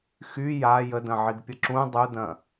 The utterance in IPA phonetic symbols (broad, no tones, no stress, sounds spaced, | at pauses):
x y j a j ə d ɐ̃ ʕ i ɡ pʲ ə ǁ ũ dˤ u d ɐ̃